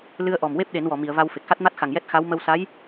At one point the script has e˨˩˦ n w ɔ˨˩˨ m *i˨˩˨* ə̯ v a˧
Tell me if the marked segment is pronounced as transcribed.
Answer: yes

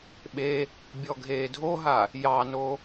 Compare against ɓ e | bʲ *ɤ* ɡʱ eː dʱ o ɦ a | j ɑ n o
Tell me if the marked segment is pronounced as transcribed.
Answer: no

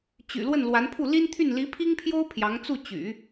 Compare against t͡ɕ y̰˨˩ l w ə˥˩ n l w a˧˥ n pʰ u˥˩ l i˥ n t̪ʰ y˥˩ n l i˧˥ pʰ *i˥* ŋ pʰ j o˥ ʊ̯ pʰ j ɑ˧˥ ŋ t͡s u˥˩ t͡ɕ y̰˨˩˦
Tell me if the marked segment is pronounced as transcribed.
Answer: yes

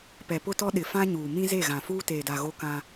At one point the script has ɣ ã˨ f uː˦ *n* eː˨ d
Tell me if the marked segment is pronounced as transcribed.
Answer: no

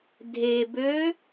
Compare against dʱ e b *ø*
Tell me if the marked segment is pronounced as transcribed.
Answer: yes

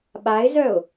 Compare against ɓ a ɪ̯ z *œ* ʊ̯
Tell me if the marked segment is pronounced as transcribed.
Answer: yes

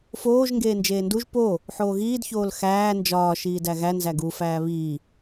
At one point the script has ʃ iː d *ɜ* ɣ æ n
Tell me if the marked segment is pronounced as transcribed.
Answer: no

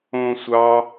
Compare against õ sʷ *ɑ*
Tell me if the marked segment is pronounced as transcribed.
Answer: yes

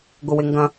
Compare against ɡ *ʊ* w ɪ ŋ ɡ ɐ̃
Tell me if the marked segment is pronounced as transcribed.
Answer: yes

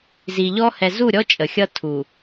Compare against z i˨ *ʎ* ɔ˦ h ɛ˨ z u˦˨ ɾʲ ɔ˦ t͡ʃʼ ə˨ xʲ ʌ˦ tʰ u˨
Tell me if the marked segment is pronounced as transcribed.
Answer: yes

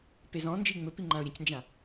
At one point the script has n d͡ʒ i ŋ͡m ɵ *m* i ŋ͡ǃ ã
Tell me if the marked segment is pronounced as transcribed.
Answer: no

